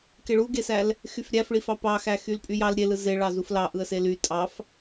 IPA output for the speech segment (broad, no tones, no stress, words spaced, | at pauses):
keɭuɡesæl | xyfɾʲæfɭifɑ pɑxæ xylpʼyjɑl ɾʲelɯ zeɭɑ zuflɑ ʔɯə̯sely tʼɑf